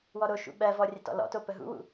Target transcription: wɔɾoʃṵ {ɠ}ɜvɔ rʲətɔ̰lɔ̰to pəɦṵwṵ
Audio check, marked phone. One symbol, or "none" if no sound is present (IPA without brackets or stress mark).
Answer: ɓ